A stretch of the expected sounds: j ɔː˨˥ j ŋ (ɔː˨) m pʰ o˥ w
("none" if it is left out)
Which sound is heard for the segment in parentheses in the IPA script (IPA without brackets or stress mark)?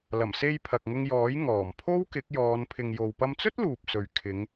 ɔː˨˩